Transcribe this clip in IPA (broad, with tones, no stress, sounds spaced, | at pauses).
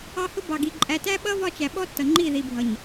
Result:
ɑ˦ h ʊ˦ b ɑ˨ ɡ i˨ ǃʼ æ˨ t æ˦ ɓ ʌ˦ v ɒ˦ t͡ʃ æ˨ ɓ ɔ˦ tː ʌ˨ ŋ͡ǃ i˦˨ ð i˨ bʱ ʌ˨ ɲ